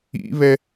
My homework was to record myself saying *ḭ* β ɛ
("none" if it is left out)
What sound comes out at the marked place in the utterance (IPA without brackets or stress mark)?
ḭ